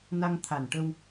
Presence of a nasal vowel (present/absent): absent